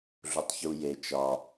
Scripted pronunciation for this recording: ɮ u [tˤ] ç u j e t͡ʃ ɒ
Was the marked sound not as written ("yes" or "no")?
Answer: no